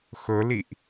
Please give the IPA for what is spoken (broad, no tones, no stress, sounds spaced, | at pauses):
x ɵ l i ʔ